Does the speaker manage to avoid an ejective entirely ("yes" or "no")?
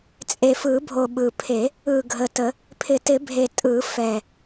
no